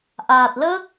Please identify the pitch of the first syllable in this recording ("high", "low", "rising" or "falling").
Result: low